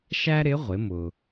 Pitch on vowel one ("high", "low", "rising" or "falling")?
high